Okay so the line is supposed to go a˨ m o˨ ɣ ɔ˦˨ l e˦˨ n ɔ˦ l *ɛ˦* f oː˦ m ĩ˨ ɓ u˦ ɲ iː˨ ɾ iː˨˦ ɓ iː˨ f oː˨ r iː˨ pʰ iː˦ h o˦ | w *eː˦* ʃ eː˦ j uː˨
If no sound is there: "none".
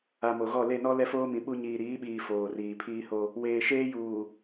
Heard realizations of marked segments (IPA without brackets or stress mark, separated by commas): ɛ˦, eː˨